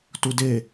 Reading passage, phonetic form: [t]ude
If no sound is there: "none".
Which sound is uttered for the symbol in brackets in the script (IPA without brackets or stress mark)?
t